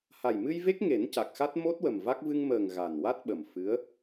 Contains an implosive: yes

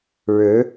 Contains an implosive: no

